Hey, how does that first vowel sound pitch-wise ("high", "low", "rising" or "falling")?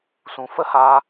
low